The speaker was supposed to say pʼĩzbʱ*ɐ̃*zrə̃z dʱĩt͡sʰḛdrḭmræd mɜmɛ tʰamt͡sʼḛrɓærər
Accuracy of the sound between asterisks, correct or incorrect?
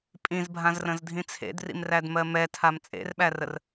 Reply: incorrect: ã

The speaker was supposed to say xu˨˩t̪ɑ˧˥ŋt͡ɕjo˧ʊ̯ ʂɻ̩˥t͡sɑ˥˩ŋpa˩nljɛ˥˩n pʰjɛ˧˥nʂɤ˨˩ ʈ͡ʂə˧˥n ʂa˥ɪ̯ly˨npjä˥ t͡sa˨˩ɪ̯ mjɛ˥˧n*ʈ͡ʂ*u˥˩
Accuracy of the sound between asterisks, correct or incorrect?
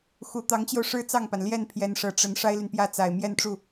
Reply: correct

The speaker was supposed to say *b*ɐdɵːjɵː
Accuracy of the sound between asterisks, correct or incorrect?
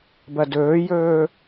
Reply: correct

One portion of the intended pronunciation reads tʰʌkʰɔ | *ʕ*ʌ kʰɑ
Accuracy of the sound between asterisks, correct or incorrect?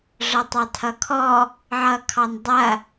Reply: correct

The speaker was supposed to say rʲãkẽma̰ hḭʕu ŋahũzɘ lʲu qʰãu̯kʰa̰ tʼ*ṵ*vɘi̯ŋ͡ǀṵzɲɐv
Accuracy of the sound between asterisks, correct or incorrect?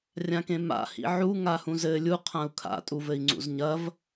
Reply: incorrect: u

